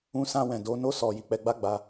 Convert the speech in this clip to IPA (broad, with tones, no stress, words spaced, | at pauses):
ũ˧sã˧ wɛ̃˨do˨˦no˦ sɔ˧ ji˨k͡pɛ˧ɡ͡ba˦ ɡ͡ba˧